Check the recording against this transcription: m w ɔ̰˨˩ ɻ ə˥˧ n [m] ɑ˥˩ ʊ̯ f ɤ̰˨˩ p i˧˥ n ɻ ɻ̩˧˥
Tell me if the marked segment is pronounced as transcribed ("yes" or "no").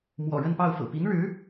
no